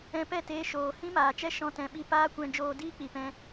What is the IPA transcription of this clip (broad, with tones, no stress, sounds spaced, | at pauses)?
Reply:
ɛ̃˧ p ɛ˦˨ t eː˧ ʃ oː˨ h ĩ˦ m aː˨ t͡ʃ ɛ˦ ʃ ɔ̃˧ t ɛ̃˨ ɓ i˧ p aː˦ kʷ ɛ̃˧ d͡ʒ oː˧ d iː˦ k͡p i˨ p ɛ̃˧